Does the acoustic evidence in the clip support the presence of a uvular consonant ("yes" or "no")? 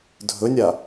no